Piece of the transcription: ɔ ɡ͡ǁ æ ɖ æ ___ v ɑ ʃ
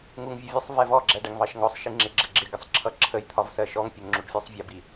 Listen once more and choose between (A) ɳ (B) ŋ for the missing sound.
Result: B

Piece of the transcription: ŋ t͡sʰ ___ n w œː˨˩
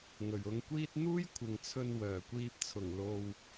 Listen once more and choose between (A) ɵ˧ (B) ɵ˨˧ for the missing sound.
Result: A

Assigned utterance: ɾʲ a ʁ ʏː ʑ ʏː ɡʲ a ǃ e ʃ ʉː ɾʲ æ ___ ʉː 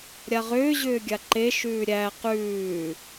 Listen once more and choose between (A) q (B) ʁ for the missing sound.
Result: A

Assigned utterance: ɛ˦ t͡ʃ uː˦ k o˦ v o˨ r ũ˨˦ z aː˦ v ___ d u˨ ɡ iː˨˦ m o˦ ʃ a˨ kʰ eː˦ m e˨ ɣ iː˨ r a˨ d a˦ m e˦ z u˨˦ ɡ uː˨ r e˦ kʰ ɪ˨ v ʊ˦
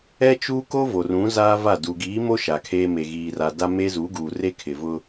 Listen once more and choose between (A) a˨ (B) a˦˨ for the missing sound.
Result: B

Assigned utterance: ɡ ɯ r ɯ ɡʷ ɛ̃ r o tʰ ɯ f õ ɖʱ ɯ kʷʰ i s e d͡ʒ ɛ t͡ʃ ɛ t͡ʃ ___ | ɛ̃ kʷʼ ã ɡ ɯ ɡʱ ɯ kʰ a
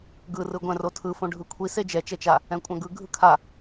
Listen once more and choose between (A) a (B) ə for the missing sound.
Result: A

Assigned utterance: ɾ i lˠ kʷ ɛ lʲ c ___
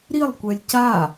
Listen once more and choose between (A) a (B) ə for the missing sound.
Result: A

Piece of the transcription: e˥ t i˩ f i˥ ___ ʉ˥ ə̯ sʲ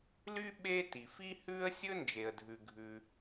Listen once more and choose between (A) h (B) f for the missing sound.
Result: A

